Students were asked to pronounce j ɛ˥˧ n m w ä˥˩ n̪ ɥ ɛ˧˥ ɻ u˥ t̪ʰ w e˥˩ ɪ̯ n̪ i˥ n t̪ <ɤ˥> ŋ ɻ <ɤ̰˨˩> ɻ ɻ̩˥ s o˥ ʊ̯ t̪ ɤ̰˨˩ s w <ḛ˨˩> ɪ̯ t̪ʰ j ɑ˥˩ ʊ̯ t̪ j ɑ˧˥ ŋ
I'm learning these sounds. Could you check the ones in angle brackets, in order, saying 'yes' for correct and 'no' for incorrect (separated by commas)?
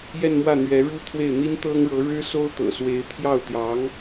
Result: yes, no, no